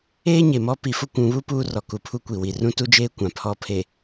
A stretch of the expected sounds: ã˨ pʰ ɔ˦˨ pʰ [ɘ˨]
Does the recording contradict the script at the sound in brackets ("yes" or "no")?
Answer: yes